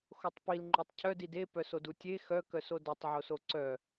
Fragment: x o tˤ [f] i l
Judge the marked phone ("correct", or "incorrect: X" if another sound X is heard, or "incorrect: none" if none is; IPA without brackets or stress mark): incorrect: p